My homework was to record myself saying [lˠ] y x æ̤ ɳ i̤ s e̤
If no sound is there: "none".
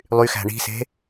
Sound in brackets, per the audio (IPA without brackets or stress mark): lˠ